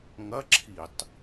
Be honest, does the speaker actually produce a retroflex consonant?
no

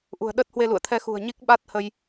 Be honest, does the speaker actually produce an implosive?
yes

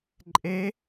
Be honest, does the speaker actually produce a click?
yes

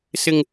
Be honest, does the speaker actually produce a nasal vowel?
no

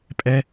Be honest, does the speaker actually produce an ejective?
yes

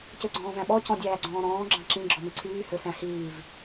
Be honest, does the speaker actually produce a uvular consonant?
no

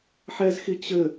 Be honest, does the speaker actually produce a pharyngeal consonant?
yes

